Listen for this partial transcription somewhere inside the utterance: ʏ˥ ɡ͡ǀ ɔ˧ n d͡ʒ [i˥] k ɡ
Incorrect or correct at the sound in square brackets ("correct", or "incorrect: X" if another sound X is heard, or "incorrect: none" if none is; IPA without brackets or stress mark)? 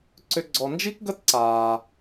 correct